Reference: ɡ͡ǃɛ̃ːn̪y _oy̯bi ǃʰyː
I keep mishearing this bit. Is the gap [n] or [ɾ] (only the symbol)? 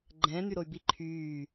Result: ɾ